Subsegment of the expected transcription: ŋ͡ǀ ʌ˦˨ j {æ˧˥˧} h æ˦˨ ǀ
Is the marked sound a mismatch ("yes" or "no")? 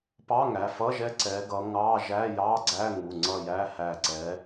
no